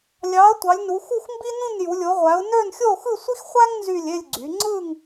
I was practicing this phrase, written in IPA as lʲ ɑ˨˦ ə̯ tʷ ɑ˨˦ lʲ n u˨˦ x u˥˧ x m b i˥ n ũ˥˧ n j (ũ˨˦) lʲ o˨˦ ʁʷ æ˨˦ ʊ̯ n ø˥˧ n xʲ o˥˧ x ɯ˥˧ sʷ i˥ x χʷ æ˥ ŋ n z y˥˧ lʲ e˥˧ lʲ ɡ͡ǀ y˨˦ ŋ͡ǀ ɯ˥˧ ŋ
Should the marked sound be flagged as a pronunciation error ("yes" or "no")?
yes